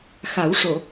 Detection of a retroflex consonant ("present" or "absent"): present